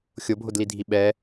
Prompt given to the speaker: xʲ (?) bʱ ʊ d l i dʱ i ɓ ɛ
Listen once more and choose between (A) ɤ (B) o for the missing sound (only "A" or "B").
B